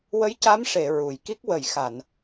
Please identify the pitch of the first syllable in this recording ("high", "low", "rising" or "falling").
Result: rising